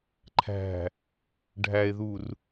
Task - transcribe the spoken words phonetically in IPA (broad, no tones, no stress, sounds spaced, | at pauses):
ǃʰ æ̤ | ɖʱ æ e̯ ð u r